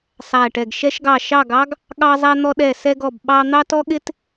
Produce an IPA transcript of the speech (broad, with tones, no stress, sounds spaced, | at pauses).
sˤ æ˥˧ ʈ ɛ˥˧ ɡ ʃ ɛ˥ ʃ ɡ ɑ˥˧ ʃ ɑ˥˧ ɡ ɑ˥ ɡ | ɠ ɑ˥ zˤ æ˥ n̪ ɔ˥ ɗ ɛ˥˧ s ɛ˥ ɡ ɔ˥˧ b ɓ ɑ˥ n̪ ɑ˥ t ɔ˥ ɠ ɪ˥ t